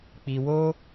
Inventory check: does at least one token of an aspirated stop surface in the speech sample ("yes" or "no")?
no